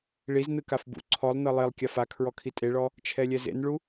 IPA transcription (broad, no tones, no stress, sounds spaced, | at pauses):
ɭ i z n ɯ k a f b ṵ ǀʰ ɔ lˠ n ɤ lˠ e lˠ kʲ a f a kʰ ɹ ɔ kʰ i tʼ e ɭ ɔ | t͡ʃʰ ɛ lʲ ɛ z ḛ n ɭ u